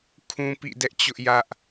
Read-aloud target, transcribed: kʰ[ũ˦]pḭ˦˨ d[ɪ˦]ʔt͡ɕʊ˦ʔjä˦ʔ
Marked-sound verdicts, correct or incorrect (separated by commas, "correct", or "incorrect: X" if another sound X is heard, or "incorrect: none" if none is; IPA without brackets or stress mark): correct, incorrect: ɛ˦